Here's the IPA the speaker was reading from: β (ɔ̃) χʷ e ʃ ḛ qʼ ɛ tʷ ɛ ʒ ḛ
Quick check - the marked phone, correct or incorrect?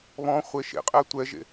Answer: correct